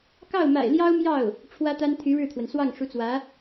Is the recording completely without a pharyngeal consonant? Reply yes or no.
yes